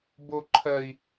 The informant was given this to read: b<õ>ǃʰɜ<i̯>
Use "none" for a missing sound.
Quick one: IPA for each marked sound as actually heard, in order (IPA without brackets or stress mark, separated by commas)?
o, i̯